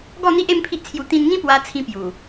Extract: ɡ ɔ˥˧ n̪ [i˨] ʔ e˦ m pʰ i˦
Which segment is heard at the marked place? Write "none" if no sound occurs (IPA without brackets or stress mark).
i˦